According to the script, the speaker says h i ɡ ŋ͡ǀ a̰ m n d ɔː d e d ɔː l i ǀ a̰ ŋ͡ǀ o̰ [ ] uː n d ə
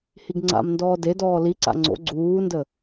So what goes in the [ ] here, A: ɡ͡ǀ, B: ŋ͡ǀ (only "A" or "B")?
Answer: A